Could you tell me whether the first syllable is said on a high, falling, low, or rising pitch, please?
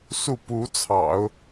falling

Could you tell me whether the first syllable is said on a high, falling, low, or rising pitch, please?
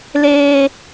high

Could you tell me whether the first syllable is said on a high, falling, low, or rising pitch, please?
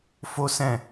high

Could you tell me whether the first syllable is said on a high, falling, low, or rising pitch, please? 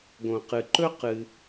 low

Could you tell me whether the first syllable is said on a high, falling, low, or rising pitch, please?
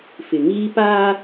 low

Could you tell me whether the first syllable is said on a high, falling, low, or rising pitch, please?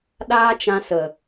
high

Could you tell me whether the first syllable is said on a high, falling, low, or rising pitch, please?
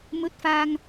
rising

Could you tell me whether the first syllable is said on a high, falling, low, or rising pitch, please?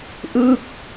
falling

